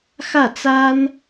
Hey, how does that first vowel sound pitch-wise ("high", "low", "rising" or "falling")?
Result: falling